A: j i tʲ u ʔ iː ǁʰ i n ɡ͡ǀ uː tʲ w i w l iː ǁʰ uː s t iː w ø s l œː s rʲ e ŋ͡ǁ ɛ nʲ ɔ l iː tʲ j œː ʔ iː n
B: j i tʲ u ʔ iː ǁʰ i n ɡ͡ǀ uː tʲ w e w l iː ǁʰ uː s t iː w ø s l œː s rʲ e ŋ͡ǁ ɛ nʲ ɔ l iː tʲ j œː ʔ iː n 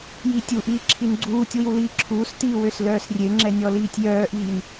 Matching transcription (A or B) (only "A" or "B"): A